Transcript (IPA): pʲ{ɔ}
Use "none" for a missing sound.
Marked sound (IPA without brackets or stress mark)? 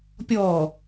ɔ